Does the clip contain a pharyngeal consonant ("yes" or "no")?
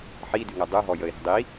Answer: yes